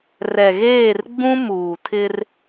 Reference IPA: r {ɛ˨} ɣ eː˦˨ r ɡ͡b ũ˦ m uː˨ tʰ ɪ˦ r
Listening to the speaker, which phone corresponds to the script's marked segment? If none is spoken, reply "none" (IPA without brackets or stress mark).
ɛ˨